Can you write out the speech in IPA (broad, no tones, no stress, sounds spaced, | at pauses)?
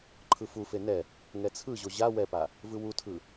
ǃʰ ɯ f u f e n ɛ | ŋ ɛ t͡sʰ ɯ ʑ o ʑ a w ɛ p a | v ɯ w u tʰ ɯ